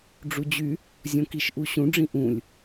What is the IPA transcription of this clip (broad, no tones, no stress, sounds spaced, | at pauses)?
ɖ͡ʐ u d͡ʑ y | zʲ õ k i ʃ ʔ u ɕ ũ ɖ͡ʐ ĩ ʔ ũ lʲ